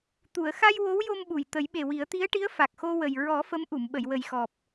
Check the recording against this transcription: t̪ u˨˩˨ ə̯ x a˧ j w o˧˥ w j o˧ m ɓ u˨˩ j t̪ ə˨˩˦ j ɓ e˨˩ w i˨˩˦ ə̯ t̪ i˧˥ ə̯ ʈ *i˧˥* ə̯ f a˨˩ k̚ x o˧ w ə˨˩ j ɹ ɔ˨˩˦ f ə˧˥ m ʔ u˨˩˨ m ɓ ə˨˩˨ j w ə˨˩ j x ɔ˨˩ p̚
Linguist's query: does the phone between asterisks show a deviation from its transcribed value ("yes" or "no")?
no